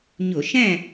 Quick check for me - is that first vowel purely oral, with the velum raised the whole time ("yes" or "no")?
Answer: yes